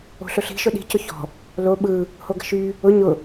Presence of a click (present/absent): absent